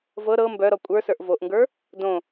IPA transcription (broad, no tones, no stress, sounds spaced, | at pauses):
v ɤ ɾ ɤ m b œ ɾ ɔ kʷʼ ə˞ s ə˞ ʔ v o ʔ ŋ ɡ ə˞ | d õ